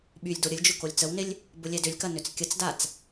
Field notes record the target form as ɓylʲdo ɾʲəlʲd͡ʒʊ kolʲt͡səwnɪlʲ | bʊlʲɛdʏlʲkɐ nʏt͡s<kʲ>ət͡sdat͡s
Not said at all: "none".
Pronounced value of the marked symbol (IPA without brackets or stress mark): kʲ